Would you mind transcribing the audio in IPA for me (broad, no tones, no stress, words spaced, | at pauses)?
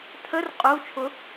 tʰər qʼut͡ʃʰʊ